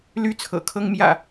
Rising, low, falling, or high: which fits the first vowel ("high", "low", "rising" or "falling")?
high